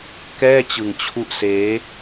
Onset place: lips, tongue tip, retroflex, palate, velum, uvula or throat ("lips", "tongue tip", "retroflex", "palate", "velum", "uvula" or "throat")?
velum